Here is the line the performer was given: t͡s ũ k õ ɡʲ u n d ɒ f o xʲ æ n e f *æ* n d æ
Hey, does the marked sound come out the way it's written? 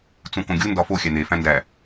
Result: no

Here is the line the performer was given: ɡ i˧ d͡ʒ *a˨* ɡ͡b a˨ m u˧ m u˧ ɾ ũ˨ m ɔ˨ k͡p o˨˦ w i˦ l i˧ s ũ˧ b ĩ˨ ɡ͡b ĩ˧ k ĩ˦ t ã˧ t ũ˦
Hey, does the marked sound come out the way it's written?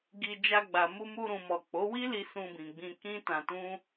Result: no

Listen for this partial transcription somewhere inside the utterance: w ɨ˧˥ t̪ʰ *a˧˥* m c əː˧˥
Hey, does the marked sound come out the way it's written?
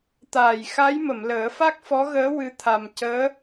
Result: no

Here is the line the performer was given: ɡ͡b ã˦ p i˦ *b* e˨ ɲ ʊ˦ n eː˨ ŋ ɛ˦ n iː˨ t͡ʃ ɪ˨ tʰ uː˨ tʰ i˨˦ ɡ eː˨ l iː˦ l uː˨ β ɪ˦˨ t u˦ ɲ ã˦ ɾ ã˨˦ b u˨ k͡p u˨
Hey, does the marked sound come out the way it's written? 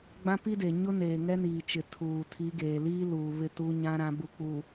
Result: no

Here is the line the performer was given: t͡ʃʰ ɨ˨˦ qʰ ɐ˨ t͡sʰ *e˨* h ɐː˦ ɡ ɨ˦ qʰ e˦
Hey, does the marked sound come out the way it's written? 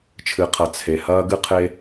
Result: yes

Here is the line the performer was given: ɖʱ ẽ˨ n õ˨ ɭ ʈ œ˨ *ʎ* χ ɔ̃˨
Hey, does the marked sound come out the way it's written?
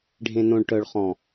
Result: no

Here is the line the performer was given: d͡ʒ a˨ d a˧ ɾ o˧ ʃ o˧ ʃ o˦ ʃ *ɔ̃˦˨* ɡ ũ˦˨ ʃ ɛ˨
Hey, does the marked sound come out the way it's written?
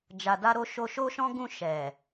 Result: no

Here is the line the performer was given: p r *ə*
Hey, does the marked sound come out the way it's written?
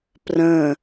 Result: no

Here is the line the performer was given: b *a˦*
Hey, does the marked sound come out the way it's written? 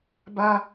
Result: yes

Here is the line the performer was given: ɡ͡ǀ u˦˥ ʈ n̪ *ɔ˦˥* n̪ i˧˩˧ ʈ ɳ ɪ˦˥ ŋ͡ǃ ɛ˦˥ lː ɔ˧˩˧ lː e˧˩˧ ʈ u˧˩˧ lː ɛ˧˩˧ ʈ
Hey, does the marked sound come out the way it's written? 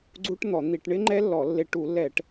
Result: no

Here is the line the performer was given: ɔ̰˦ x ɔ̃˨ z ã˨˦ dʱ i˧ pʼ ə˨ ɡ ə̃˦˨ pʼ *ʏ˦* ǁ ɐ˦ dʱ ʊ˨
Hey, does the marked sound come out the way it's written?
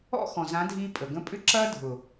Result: yes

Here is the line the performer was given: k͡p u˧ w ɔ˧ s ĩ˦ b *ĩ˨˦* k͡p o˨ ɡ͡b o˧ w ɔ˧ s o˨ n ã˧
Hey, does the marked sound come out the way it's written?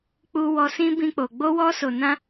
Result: no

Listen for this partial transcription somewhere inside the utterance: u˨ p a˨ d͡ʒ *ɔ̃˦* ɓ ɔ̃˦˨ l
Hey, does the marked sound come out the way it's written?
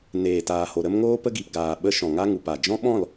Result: yes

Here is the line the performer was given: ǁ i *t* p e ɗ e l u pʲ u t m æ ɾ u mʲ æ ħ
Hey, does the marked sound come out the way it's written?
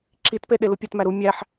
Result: yes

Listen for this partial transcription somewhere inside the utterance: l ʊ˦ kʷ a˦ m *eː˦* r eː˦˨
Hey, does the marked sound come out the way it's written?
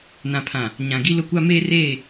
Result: yes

